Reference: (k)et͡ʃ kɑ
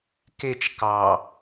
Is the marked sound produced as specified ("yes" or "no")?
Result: yes